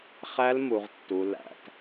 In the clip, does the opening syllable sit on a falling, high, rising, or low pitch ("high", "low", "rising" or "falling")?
high